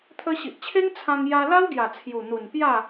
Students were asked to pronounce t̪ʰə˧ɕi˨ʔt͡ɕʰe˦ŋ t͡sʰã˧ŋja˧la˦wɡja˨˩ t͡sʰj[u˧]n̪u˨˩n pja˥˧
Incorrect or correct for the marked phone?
incorrect: u˨˩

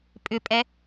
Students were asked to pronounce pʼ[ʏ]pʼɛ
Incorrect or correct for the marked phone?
correct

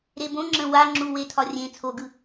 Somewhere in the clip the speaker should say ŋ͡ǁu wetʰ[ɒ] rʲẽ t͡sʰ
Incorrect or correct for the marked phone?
correct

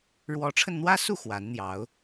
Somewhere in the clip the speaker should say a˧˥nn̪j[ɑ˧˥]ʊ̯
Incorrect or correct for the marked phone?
correct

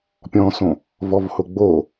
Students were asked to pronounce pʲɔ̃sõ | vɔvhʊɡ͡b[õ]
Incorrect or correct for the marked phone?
incorrect: o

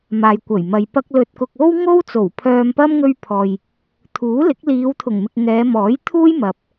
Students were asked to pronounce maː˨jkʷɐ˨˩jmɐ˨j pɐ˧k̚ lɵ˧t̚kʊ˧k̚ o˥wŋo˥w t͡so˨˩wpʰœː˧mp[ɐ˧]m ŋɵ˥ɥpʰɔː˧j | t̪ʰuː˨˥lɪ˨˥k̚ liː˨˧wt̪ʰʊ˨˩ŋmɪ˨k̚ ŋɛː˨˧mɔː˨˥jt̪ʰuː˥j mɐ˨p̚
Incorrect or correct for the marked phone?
incorrect: ɐ˥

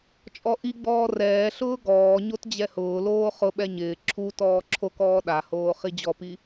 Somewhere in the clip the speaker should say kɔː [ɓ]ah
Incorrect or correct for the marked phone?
incorrect: ɗ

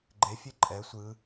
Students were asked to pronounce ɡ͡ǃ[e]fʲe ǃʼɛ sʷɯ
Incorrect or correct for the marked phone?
correct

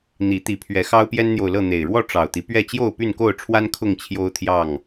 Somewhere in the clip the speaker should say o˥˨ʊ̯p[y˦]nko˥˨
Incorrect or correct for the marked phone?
incorrect: y˥˨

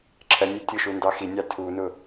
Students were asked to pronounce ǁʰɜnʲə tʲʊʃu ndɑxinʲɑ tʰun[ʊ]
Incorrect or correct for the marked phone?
correct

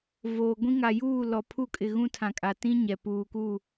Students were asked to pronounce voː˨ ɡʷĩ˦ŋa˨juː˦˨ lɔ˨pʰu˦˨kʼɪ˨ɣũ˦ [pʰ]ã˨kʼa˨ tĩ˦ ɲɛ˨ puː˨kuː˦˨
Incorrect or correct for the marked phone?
incorrect: tʰ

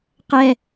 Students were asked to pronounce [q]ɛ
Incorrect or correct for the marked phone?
correct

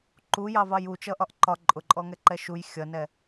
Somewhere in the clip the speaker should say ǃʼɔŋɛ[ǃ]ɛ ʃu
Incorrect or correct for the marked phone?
correct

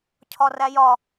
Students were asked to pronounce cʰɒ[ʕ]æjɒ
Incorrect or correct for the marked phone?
incorrect: r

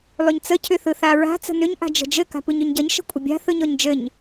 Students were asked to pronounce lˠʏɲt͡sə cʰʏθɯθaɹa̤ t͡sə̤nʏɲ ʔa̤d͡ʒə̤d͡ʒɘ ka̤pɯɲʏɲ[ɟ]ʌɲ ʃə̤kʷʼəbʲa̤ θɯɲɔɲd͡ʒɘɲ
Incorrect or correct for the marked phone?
correct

